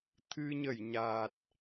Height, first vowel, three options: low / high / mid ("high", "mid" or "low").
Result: high